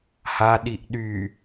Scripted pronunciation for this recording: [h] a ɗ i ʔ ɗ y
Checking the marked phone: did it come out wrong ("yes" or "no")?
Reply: no